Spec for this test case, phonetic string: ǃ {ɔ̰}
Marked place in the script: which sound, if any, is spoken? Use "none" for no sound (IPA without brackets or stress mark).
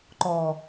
ɔ